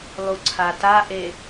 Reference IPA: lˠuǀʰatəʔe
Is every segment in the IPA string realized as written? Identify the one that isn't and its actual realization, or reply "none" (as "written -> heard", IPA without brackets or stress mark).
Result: ə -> a